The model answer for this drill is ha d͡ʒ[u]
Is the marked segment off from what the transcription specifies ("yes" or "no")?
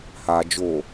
yes